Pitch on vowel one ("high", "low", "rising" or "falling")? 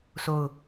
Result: falling